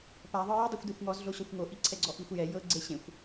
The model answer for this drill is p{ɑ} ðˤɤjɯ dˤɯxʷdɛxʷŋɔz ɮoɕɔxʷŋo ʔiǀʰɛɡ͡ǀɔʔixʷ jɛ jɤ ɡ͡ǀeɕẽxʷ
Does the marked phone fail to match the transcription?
yes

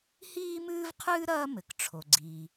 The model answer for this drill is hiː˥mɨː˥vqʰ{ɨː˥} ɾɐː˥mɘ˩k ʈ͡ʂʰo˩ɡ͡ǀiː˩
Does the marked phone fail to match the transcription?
no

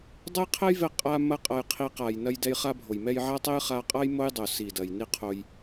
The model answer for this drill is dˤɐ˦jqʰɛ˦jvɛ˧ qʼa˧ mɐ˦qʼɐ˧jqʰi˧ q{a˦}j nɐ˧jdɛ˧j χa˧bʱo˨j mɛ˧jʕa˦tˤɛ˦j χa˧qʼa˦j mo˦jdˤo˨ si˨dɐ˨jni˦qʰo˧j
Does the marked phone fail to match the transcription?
yes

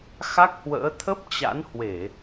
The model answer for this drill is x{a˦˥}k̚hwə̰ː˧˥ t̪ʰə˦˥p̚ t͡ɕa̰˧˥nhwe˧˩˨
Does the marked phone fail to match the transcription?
no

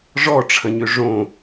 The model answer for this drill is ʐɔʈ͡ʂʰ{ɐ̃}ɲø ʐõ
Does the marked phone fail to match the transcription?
no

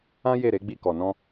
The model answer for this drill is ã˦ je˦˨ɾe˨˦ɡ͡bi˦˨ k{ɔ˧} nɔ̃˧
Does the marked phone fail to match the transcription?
yes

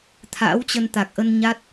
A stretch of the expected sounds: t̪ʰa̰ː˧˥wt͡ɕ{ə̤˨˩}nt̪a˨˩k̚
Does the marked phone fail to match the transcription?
yes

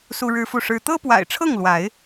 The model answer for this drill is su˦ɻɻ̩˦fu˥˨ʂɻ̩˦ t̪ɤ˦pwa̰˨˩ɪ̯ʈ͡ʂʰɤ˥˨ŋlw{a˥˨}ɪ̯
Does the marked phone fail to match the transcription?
yes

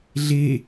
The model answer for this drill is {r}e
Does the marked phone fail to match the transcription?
yes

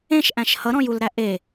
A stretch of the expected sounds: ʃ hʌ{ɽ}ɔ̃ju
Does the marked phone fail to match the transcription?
yes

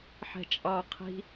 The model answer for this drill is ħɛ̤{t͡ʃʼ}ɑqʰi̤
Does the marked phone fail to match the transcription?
no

